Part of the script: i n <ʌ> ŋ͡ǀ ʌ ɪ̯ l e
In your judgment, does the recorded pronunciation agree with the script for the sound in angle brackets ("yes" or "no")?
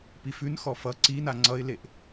no